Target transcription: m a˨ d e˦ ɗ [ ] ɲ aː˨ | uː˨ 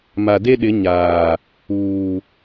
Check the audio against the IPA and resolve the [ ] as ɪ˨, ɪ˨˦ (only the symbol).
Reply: ɪ˨˦